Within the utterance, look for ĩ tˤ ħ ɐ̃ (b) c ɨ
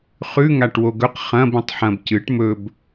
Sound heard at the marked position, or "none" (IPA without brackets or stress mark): b